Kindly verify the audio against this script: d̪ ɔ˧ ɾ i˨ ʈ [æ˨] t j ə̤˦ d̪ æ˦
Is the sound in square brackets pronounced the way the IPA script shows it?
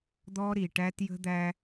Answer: no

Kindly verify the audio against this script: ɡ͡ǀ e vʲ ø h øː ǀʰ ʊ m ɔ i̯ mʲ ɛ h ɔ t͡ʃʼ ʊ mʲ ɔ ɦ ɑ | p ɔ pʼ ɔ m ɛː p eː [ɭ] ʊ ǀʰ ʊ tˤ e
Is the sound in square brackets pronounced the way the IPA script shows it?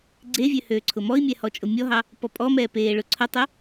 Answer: yes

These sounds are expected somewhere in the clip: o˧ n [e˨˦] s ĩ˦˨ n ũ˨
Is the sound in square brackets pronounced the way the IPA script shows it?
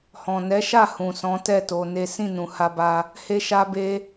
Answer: no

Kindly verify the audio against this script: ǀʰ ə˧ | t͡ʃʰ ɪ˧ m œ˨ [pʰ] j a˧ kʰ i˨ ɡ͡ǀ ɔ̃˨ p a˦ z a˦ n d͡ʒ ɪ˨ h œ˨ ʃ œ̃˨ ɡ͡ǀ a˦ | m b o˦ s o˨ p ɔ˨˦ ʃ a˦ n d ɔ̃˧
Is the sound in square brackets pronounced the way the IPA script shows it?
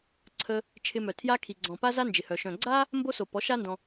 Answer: no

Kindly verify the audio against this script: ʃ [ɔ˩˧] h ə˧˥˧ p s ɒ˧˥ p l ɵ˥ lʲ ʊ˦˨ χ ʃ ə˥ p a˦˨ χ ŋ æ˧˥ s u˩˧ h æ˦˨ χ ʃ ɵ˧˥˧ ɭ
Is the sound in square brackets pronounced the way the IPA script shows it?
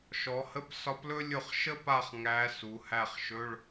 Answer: yes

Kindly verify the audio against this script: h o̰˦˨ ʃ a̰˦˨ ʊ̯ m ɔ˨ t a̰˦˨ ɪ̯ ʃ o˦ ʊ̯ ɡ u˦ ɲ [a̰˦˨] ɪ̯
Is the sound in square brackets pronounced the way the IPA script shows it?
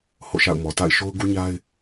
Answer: no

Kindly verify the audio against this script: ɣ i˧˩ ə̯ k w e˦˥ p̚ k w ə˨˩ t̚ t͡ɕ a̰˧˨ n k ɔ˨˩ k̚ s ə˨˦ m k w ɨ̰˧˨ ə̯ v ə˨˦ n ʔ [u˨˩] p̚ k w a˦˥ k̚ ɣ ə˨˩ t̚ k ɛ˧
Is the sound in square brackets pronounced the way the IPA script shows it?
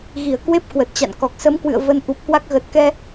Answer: yes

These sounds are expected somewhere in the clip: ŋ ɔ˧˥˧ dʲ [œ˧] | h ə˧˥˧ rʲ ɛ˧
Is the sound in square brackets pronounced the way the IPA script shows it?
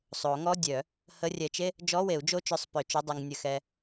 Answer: no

